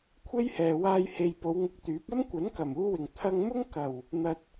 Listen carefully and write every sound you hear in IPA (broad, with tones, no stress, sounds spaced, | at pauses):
kʷʰ e˥ j h ɛː˨ w aː˧ j h e˨ j p o˨˧ w ŋ ʊ˧ k̚ t̪ yː˨˥ p̚ ɐ˥ m kʷ ɐ˨˥ n k ɐ˨˩ m uː˧ w ɪ˨˩ ŋ t̪ʰ ɐ˧ ŋ m ʊ˥ ŋ k ɐ˨˩ w | n̪ ɐ˧ t̚